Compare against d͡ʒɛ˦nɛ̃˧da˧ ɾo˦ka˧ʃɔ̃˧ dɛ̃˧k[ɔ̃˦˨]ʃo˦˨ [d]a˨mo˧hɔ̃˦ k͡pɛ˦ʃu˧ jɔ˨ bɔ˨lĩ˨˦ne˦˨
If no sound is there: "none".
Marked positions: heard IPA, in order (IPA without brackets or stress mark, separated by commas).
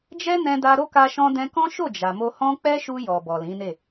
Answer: ɔ̃˦, d͡ʒ